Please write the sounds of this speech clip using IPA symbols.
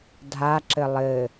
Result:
dʱ a ǁ ɘ lˠ ɘ

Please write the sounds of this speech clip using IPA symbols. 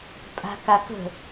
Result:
pʼ a̤ k a k ə̤

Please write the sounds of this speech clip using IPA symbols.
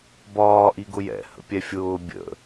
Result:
b ɒː ʔ i ɡ ʊ j ɛ̰ h ə̰ pʲ ɛ fʲ ʊː bʲ ə̰

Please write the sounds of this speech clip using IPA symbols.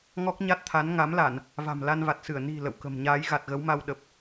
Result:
ŋ ɔ˦˥ k̚ ɲ a˦˥ t̚ t̪ʰ a˨˦ n ŋ a˨˦ m l a˧˩˨ n | v a̤˨˩ m l a˧ n v a˨˩ t̚ s ɨ˧˩ ə̯ n i̤˨˩ l ə̰˧˨ w k ə̤˨˩ m ɲ aː˨˦ j ɣ a˨˩ t̚ ɣ ə˨˦ w m a˧ w ɗ ə˨˩ p̚

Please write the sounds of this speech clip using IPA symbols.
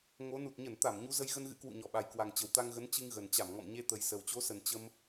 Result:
ŋ o˨˦ n u˨˩ t̚ ɲ ə˧˩ n t̪ a˧˩ m ɲ u˨˦ z ə˧ j ɣ ə˧ n ɣ ɨ̰˧˥ k w ṵ˧˨ ɲ ɔ˧˩ ɓ a˨˩ j k w a˨˩ ŋ t͡ɕ ə˨˩ w t̪ a˧ ŋ ɣ ə˨˦ n t͡ɕ ɨ˧ ŋ ɣ ə˨˩ n t͡ɕ a˧˩ m ŋ ɔ̰˧˨ m ɲ e˧ t̪ ə˨˩ j s ə˨˩ w t͡ɕ o˨˦ s ə˨˩ n t͡ɕ ə˧ m

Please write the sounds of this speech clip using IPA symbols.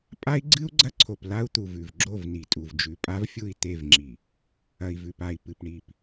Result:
pʼ a˦ i̯ ɡ͡ǀ ɨ˦ u̯ ɡ͡ǀ ɐ˦ ǀʰ o˨ p l a˦ u̯ t̪ u˨ v ʉ˨ v ɡ͡ǁ o˦˨ v n i˨ tʼ u˨ v d͡ʒ ʉ˨ pʼ a˦ v fʲ u˦˨ i̯ t̪ e˦˨ v ŋ͡ǁ i˨ | ɐ˨ i̯ v ʉ˨ p a˨ i̯ p ɨ˨ p ɳ i˨ p

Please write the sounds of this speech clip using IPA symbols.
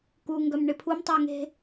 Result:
k u ŋ ɡ œ m ɳ ɪ pʰ u m tˤ e ŋ e̤

